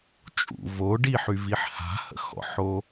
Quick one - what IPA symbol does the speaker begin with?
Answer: t͡ʃʼ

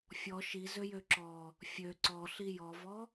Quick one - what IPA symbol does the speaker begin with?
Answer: fʲ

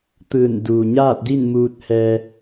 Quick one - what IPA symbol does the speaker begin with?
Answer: t̪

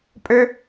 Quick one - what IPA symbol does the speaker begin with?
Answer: pʼ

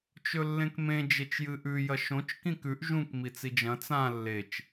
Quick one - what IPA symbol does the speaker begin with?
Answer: t͡ʃ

